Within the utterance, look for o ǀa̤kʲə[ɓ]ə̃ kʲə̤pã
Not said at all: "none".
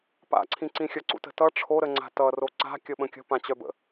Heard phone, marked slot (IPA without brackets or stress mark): ɓ